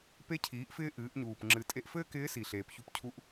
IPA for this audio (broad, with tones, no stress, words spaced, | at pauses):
pe˧˥cʰiː˩˧ʔfɪː˧ ʔɨː˩˧ʔɲuː˩p ŋ͡ǁɨ˩˧ tʼe˧ʔfɘː˥kɪː˧˥ si˩ɬeː˩pçu˧p cʰu˧ʔ